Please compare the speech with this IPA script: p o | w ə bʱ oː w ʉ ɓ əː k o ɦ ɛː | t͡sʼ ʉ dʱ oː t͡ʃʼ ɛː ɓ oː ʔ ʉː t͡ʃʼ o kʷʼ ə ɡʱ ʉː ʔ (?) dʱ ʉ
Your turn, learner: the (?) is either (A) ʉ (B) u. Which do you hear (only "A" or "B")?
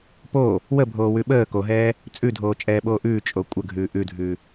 A